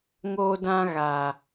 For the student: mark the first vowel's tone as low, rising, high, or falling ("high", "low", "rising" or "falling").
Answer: high